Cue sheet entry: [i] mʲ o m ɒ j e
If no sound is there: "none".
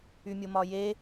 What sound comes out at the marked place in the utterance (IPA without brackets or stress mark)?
y